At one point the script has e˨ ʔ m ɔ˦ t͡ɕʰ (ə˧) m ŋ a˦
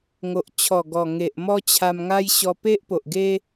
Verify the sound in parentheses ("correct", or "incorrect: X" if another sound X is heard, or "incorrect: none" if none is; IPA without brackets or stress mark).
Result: incorrect: a˧